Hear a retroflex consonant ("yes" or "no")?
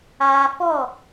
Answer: no